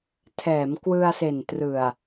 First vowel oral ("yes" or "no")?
yes